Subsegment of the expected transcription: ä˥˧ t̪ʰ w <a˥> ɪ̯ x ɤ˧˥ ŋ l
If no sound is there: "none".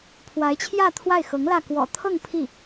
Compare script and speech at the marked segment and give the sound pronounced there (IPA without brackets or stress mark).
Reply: a˥˩